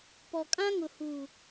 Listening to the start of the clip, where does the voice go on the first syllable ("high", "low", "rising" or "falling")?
low